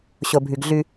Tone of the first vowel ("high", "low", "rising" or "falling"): low